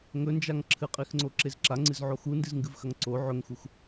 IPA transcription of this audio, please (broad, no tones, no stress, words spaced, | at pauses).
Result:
ŋɵnd͡ʒaŋ ǁʰɨqʼixŋ͡ǀoǁez ǁaŋ͡ǀɨzʕo xundɨzŋɡɨvxɐŋ ǀo ʕɵŋxux